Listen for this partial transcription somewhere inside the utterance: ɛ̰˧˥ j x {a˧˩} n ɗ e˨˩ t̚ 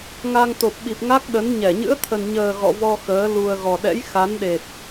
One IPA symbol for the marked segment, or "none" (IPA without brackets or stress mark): a˨˦